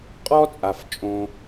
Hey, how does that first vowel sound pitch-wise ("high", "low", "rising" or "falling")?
high